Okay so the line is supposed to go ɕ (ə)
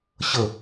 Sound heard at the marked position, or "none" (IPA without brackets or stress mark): ə